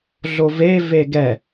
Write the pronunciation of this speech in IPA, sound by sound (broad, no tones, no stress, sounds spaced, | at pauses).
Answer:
ɮ o v e v e ɡ ɛ